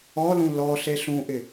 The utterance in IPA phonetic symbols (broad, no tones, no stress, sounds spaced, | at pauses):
ɔ l ũ l ɔ ɬ e ɬ ũ ʔ ɪ